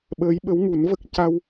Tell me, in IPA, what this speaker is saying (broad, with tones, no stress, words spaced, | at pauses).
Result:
ɓəː˧˥jɓə˧˥w ŋu˨˩˦nvə˦˥k̚ ca˧w